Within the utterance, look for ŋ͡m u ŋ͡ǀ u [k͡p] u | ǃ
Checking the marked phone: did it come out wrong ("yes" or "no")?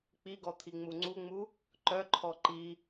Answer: yes